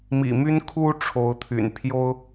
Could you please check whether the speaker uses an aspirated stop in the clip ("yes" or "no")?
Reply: yes